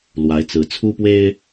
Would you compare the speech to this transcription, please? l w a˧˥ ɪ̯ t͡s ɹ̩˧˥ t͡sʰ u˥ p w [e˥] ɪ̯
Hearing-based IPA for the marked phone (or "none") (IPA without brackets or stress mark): e˥